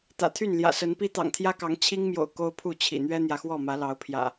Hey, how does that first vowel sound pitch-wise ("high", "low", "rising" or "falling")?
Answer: low